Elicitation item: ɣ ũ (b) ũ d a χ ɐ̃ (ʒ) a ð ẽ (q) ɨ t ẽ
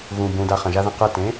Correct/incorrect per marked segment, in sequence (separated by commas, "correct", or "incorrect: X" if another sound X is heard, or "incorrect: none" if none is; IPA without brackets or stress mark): correct, correct, correct